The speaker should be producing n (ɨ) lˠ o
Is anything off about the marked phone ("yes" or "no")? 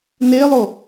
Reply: yes